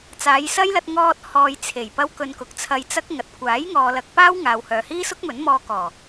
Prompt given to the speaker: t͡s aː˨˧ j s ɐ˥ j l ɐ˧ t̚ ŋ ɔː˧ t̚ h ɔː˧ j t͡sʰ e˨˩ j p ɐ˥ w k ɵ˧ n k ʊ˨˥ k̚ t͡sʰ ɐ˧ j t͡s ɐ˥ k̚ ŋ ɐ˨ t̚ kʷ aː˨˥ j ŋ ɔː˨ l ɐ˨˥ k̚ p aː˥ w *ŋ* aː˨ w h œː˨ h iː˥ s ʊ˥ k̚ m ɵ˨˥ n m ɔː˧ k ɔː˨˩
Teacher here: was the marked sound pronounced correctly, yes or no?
yes